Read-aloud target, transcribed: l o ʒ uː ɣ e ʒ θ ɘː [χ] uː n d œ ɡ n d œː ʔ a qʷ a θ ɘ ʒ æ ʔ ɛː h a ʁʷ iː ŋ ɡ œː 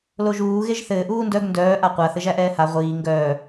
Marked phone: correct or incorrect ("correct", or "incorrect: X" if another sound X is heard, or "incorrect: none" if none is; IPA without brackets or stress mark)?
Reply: incorrect: ʔ